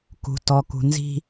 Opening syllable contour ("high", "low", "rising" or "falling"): low